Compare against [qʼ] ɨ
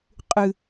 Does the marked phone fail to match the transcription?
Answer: no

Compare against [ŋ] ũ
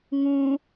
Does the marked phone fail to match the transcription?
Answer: no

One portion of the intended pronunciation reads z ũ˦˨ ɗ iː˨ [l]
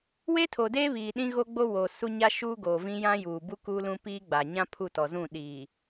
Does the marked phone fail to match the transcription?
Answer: yes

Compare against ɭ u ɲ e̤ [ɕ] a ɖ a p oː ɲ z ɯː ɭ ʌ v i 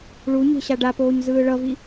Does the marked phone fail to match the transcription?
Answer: no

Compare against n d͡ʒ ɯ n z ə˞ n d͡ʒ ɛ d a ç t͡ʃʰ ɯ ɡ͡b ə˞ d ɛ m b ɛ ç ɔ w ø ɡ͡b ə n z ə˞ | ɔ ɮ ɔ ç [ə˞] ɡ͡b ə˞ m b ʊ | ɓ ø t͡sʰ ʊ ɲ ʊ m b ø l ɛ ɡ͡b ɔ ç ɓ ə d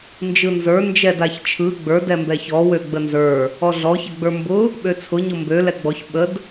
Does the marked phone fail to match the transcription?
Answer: yes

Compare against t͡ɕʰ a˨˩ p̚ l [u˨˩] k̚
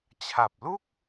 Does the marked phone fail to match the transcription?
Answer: yes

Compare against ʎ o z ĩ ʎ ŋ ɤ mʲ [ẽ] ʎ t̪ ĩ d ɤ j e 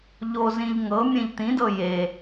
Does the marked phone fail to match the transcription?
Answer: no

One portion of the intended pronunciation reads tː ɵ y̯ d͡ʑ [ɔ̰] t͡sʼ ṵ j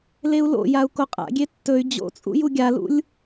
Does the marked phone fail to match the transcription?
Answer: yes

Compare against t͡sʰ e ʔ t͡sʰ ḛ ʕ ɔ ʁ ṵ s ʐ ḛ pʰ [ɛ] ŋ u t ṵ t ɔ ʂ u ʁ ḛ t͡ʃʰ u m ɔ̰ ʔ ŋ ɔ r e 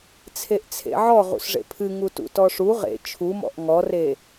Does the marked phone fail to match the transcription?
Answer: yes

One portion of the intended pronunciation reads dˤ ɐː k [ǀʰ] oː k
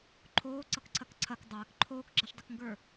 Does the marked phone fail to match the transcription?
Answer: yes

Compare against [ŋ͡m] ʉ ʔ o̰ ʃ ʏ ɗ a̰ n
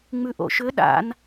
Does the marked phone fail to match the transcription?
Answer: no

